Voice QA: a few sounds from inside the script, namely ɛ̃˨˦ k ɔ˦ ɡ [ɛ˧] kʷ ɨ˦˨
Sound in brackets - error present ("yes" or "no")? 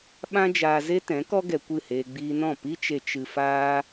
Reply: no